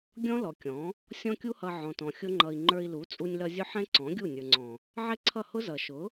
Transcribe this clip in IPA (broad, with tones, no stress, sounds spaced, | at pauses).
ɡʲ ɔ̃˦ l ɔ˨ kʲ ɔ̃˨˦ | sʲ ɔ̃˦ kʲ u˦ h ʌ˧ ʕ ɔ̃˨ t ɔ̃˨ xʲ ʊ˦ ŋ͡ǃ ʌ˧ i̯ ŋ͡ǃ ə˞˧ i̯ l u˨˦ t͡sʼ u˧ nʲ l ʌ˧ zʲ ʊ˦ ħ ɛ̃˦ ǀ ɔ̃˨˦ ɡʲ u˦˨ nʲ ə˞˨ ŋ͡ǀ ɔ̃˨ | ʕ ɛ˦ ǀʰ ʌ˦˨ h ʊ˦ z ʌ˨ ʃ ʊ˨˦